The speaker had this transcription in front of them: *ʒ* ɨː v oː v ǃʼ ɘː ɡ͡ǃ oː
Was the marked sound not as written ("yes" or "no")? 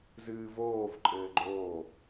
yes